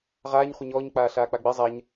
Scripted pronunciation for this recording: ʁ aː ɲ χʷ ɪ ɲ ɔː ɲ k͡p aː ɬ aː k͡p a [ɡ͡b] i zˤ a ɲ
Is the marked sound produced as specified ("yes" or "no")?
yes